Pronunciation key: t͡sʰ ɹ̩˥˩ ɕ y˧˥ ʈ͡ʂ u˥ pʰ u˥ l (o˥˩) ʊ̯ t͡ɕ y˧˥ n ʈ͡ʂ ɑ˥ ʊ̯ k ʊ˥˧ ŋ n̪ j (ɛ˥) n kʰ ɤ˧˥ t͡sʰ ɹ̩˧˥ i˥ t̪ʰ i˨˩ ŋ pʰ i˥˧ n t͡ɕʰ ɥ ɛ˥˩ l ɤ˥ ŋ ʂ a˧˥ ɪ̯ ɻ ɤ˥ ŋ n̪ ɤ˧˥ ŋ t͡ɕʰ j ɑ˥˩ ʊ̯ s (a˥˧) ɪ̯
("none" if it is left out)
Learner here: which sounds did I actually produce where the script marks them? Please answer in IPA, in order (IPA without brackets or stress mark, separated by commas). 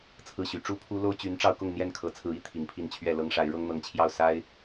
o˥, ɛ˥˩, a˥